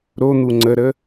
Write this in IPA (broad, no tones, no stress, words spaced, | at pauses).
ɾon̪u ŋ͡ǀəɾə